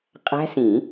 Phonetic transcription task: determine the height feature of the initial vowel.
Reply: low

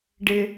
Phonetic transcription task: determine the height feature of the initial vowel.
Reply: high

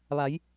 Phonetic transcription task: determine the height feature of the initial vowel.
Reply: low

